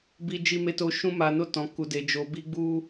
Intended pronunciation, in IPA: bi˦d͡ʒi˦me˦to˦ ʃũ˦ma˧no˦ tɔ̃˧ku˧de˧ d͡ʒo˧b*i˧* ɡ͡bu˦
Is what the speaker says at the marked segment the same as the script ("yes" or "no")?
no